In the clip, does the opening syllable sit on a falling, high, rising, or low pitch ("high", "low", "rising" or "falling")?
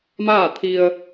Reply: falling